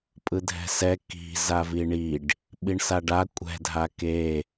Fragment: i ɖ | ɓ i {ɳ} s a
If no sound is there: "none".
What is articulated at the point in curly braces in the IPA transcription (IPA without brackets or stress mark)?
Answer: ɳ